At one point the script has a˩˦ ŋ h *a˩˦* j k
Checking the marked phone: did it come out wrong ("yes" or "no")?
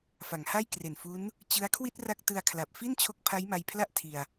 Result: yes